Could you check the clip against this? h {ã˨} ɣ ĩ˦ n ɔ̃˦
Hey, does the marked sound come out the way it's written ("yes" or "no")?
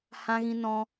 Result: no